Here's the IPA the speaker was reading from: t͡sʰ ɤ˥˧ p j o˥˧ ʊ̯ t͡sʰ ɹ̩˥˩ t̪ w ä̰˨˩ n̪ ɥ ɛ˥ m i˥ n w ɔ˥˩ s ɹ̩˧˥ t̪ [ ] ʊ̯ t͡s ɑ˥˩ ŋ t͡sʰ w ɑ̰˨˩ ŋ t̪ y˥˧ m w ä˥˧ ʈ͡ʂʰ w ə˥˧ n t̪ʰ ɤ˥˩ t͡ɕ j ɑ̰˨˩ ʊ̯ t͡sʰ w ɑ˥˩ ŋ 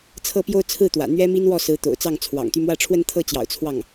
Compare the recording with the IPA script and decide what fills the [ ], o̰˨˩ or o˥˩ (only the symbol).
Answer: o̰˨˩